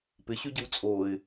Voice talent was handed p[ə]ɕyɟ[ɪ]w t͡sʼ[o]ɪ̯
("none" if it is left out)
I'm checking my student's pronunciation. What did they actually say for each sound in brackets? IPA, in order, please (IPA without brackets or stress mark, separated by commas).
ɪ, ɪ, o